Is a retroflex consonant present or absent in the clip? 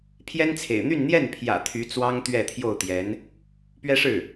present